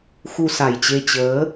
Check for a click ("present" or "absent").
absent